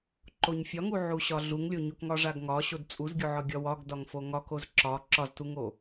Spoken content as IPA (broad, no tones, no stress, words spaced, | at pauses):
ǃoɲfʲɒŋu ʕuɕɒɮuŋlʲo ɲokŋɒʐaɡŋɒ ɕodt͡sʼuzɡʲoʕɒ ɡʲɒwɒɡ dɒŋfoŋɒkoz ǁɒ ǁɒztuŋo